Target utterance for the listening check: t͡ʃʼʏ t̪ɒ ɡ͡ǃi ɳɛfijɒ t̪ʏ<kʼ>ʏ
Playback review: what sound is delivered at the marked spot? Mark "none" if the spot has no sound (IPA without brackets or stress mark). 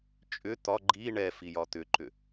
ǃ